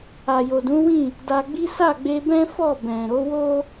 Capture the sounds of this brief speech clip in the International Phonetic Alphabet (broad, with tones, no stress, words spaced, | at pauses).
a˨jo˨dũ˨˦ wĩ˦˨ | da˧ɡ͡bi˦ sa˦˨ɡ͡be˧bɛ̃˦ fɔ˦˨bɛ̃˨ ɾo˨˦wo˦